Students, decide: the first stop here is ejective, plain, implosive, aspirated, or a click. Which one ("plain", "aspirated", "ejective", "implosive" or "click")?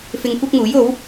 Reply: plain